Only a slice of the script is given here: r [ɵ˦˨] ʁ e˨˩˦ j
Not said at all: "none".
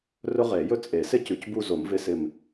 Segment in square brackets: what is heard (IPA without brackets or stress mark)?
ɵ˦